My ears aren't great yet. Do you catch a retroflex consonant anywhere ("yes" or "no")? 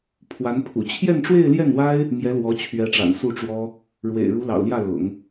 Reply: yes